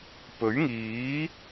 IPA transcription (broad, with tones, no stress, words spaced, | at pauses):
pɵ˨˥ɥŋiː˨˥